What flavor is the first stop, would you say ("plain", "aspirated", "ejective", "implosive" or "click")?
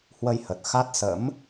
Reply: plain